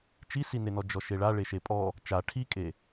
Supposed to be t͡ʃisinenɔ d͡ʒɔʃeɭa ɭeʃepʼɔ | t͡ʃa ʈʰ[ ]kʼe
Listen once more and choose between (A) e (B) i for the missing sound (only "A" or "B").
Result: B